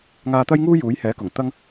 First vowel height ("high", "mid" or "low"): low